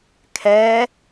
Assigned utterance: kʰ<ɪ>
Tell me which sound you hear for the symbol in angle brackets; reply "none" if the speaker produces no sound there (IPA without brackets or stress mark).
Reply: ɛ